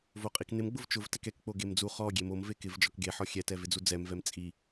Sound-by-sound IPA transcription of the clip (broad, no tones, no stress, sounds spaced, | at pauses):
v o qʼ i k n ɪ m ɡ͡b ʊ v t͡ʃ ʊ v t ɛ k ɛ k k͡p o ɡ e m d͡z u χ ɔ ɡʲ e m o m v e k ɪ v d͡ʒ ɔ k ɡ e ħ ɔ xʲ ɛ t ɛ v ɪ d͡z u d͡z ɛ m v ɛ m t͡sʼ i